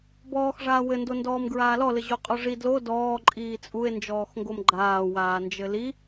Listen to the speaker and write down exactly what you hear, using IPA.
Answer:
b ɔː x ʐ aː w ɘ n d o n d ɔː m ɡ ɹ aː l ɔ l ɘ ʑ o qʼ ɔ ʐ i d l o d ɔː ǃʼ iː t͡sʼ u e̯ n d͡ʒ ɔː x ŋ ɡ o m ɡ͡ǃ aː w aː n d͡ʒ ɘ l i

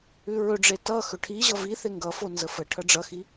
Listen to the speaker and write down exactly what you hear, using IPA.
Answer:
ʉ ɹ ɵ ɖ͡ʐ e t ʌ x ɵ ʈʰ i ʑ ʌ v i θ e ŋ ɡ ʌ f o n z ə f ə ʈʰ ʌ ɖ͡ʐ ʌ x i

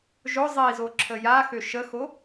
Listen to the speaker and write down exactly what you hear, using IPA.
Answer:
ʒ ʊ zˤ i z o ǁʰ ə j a x ø ʃ ə x o

